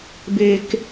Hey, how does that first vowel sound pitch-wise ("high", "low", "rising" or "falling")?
low